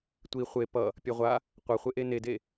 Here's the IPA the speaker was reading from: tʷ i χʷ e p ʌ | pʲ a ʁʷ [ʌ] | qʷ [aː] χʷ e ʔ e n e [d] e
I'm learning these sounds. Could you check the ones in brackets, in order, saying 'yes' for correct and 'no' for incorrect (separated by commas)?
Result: no, no, yes